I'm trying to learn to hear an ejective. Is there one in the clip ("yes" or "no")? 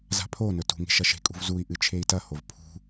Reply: yes